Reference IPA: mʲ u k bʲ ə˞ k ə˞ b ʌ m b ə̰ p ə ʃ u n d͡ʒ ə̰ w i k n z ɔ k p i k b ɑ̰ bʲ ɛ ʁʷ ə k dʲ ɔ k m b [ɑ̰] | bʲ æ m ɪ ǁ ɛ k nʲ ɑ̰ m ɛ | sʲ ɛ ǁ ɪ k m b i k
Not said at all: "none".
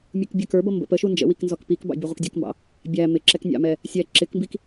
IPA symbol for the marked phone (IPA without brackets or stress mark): ɑ̰